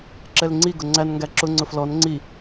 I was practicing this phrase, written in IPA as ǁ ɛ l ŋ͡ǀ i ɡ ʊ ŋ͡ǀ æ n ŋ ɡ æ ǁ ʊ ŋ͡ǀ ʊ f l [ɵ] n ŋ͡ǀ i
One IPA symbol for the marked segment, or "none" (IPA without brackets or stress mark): ɔ